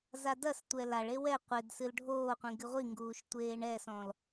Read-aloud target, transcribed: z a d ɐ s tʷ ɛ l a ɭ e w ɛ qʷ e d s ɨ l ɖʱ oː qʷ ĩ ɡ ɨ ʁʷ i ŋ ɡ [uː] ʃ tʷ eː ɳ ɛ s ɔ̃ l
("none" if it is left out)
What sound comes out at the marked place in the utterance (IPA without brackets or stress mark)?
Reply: uː